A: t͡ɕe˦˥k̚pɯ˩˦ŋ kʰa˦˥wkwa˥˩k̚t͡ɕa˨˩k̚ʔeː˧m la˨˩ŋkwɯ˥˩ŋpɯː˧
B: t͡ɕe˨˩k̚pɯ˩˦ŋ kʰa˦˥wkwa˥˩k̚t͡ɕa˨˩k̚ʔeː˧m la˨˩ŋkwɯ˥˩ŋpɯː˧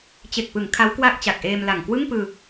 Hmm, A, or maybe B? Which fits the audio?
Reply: B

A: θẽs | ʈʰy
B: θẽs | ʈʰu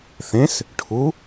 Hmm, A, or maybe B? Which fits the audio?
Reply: B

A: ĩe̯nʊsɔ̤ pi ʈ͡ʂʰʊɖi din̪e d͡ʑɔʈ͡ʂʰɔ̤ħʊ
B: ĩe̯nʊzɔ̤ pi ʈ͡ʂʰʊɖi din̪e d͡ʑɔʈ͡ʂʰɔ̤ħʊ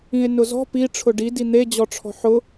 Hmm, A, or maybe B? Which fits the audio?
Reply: B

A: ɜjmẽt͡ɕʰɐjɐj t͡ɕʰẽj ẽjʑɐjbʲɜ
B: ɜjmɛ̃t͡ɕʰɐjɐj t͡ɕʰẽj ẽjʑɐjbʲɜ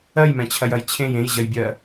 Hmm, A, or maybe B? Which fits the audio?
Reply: B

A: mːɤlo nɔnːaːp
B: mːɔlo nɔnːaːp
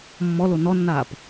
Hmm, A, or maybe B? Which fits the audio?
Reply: B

